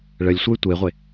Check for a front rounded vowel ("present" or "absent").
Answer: present